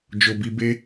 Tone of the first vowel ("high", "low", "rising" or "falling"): low